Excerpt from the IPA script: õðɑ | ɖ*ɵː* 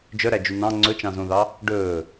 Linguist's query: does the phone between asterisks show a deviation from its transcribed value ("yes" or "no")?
no